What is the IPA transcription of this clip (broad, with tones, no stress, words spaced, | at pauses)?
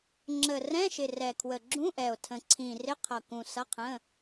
ŋ͡ǁə˨˩ rɛ̃˧˥˧ʃɪ˨˩ rɛ˨˩kʰwə˨˩ɡ͡ǁũ˧˥˧ʔɛ˨˩o̯ tʰə̃˨˩ǀʰĩ˨˩rɪ˧˥˧ qʰʌ˨˩kũ˨˩ sʌ˧˥˧qʰə̃˧˥˧